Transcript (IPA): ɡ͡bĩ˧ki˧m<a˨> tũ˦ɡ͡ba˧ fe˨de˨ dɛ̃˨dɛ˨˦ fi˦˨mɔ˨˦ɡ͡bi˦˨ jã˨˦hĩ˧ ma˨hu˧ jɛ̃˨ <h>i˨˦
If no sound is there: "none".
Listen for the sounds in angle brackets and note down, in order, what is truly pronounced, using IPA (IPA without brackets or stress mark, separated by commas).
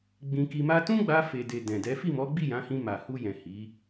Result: a˦, h